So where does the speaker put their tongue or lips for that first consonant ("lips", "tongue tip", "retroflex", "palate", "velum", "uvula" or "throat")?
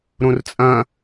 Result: tongue tip